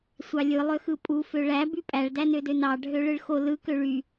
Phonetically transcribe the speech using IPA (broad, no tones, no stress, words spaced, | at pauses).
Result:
sʷɑlʲɯ lˠøxɯpʼu føɭæ bypʼæɭ dænødønɑ ɖʱøɭɯɭxo lɯ køɭy